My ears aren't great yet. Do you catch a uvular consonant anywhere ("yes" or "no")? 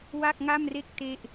no